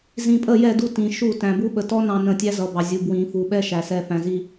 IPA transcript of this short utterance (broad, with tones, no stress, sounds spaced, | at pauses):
z ĩ˨ pʼ ə˦˨ j ɛ˦˨ d u˦˨ t ĩ˨ ʃ u˦˨ t æ̃˨ b u˦ ɓ ə˨ t ɔ˦ n ɑ̃˨ n ə̃˦˨ tʲ æ˦ z ʌ˨ b ɑ˨ zʲ u˨ b w ĩ˨ f u˨ ɓ ɛ˦ ʃ æ˨ s ɛ˨ f æ̃˨ z i˦